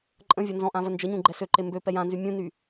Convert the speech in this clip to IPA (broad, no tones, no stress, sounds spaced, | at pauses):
ǃʼ ə̃ vʲ ɔ n z ɔ̃ ʔ ã v ə n d͡ʒ ə ɲ ũ ɡ͡ǃ ɛ s ø ǃ e m b ø p ɛ j ã n z y mʲ ũ n y